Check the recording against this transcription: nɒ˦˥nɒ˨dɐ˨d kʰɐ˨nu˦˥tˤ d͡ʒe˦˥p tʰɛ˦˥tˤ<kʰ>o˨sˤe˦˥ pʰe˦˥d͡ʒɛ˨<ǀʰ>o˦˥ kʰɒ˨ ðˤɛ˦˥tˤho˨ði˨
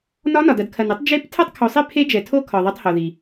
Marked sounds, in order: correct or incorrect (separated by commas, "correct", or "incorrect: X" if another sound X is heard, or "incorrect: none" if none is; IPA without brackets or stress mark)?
correct, incorrect: tʰ